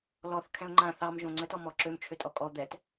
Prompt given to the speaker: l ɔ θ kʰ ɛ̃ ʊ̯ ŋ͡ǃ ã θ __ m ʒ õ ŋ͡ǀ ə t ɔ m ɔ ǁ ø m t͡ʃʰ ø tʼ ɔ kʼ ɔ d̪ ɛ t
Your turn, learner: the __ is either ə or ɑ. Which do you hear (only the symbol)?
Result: ɑ